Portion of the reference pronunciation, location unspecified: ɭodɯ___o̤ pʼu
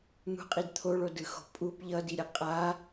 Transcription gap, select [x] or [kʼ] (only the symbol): x